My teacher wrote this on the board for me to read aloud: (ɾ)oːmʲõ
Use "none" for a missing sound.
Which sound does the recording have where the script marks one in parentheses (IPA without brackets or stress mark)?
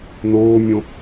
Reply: n